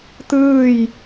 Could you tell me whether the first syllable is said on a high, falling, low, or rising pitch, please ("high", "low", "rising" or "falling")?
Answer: falling